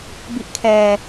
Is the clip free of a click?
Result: yes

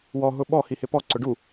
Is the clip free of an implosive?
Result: no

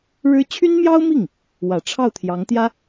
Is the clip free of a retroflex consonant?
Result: no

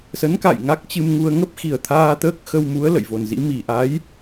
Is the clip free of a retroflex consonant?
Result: yes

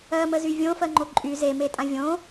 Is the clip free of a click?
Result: no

